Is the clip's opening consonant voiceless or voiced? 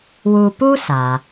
voiced